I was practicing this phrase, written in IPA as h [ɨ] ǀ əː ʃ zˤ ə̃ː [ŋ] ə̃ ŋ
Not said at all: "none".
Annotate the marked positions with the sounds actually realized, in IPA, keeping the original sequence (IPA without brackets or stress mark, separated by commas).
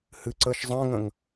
ɨ, ŋ